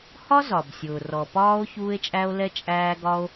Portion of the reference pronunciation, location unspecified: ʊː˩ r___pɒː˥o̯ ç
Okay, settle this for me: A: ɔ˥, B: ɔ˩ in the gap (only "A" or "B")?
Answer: B